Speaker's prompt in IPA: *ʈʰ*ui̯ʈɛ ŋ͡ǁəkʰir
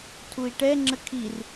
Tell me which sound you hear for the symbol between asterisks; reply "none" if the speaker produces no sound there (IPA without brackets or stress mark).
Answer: tʰ